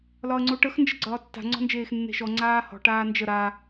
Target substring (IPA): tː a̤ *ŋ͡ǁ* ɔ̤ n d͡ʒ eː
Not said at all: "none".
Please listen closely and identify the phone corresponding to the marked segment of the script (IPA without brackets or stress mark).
ŋ͡ǀ